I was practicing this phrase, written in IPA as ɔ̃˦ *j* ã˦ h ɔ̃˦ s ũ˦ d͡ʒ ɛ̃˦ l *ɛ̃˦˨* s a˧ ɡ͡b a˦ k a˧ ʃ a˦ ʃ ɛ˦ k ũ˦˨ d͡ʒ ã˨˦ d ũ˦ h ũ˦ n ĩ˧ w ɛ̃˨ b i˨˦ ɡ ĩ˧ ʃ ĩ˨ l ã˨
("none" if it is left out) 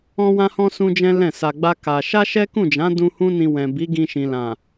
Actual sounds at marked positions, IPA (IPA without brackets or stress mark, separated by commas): w, ɛ̃˦˨